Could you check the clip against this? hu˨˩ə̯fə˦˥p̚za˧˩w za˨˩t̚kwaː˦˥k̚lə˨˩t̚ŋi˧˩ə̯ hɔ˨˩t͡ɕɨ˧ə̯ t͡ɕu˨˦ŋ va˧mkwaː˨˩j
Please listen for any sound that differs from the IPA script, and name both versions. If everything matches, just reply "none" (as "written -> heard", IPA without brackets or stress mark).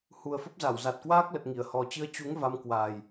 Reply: none